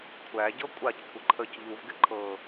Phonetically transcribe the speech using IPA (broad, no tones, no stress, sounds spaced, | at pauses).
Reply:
kʷʰ æ ɟ ɤ kʷʼ a c kʷʰ ɪ ǃʰ ə c ʎ u v ɡ ɪ ǃʰ ɤ